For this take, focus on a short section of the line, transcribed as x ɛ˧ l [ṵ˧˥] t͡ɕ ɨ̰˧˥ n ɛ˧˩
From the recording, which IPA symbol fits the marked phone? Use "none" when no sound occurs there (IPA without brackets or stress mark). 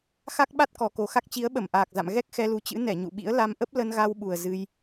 u˨˦